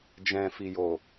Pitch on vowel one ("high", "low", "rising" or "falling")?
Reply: low